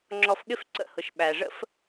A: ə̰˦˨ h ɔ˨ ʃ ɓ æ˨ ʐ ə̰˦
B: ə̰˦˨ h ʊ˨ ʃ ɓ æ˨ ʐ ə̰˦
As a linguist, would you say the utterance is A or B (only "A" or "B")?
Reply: B